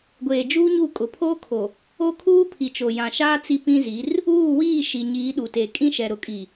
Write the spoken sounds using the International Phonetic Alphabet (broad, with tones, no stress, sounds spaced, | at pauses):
ɡʷ eː˨ d͡ʒ uː˦ ɲ u˦˨ kʼ ʊ˨ pʰ oː˦ kʰ o˨ | o˦ kʰ uː˦ pʰ i˨ t͡ʃ o˨ j ã˨ ʃ aː˦ t͡s i˦ p ĩ˦ z i˨˦ r | uː˦˨ w iː˦˨ ʃ i˨ ɲ iː˨˦ ɗ u˨ t e˨ kʼ ĩ˦ ʃ ɛ˨ ɾ ʊ˨ kʼ i˨